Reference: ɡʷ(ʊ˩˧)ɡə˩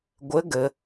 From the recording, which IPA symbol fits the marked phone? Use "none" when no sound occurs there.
ə˩˧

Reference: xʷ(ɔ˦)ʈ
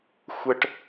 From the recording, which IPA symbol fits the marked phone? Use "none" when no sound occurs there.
ə˦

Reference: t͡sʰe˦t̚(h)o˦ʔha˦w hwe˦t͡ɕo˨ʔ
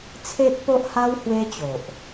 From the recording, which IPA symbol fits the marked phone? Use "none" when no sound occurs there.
p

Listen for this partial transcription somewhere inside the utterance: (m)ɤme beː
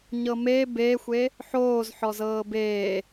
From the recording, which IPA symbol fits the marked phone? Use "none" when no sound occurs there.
ɲ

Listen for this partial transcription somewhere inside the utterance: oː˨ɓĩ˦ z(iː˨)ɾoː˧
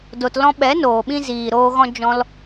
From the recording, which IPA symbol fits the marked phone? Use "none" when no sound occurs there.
iː˨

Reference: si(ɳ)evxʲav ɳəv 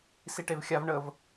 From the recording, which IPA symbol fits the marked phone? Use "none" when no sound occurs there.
ʈ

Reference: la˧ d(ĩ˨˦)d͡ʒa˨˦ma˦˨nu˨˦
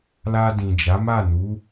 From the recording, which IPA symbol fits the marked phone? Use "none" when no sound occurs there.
ĩ˨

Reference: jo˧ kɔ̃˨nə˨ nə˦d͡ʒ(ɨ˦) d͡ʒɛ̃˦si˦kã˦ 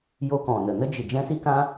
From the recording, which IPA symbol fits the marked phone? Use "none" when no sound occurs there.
ɨ˨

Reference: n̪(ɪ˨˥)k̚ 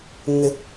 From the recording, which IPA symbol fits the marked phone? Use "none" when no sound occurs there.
ɪ˨˥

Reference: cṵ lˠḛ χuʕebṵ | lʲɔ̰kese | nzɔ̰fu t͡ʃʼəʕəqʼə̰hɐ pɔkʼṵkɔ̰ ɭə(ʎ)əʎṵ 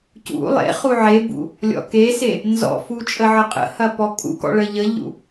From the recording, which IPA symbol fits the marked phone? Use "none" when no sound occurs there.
ʎ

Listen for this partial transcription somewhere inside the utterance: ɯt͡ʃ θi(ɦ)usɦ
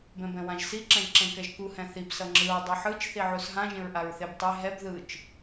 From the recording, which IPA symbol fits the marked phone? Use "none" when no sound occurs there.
ʕ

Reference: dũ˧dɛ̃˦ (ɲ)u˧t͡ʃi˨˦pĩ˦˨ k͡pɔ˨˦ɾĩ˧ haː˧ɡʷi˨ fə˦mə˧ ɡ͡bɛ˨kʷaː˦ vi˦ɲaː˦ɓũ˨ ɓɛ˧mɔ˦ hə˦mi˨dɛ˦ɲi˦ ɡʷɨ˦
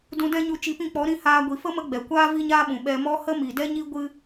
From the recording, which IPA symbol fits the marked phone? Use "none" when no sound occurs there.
ɲ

